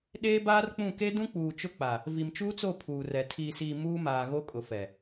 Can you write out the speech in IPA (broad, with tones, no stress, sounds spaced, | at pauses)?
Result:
ɗ eː˦ b aː˦ r k͡p ũ˦˨ k e˦ d ũ˦ k͡p uː˨ t͡ʃ ʊ˦ k͡p a˨ | v i˨ m t͡ʃ uː˦ t͡s o˦˨ pʰ uː˨ r ɛ˨ tʰ iː˨ s iː˨ m uː˦ m aː˨ ɣ o˦ kʼ ʊ˨ f ɛ˨